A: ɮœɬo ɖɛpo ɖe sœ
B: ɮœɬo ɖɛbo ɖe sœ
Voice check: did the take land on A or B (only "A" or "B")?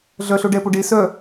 A